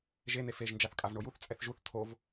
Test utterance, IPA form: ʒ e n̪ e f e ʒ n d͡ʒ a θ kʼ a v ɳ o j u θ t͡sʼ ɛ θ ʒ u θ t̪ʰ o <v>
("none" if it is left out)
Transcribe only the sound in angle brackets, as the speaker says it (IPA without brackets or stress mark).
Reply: v